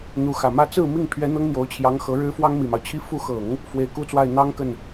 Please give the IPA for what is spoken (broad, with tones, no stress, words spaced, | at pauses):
n̪u˧˥xä˨˩mä˥ t͡sɹ̩˥˧ mi˥˩ŋ pʰɥɛ˧˥ n̪ɤ˥ŋn̪jo˧˥ʊ̯t͡ɕʰjɑ˧˥ŋ xɤ˧˥ɻɻ̩˥fwɑ˥ŋ mi˨˩mɑ˦ʊ̯t͡ɕʰi˥ fu˧˥xɤ˨˩˦ŋ | fwe˧˥ɪ̯ku˥t͡swa˥˩ɪ̯ n̪ɑ˥ŋ kə˥˩n